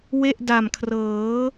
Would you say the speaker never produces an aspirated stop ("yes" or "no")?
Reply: no